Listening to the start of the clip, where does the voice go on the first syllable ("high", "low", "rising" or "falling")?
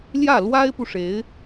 falling